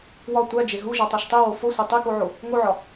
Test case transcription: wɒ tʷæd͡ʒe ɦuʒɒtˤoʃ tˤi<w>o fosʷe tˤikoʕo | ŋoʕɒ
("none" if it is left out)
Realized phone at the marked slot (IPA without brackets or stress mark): w